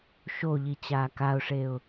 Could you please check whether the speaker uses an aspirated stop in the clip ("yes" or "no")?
no